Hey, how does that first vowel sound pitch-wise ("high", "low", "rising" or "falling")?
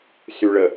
low